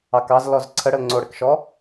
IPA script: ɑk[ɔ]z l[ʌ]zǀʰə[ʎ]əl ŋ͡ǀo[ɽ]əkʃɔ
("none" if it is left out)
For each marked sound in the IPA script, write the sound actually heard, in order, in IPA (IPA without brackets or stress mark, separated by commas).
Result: ɑ, ɔ, ɽ, ɽ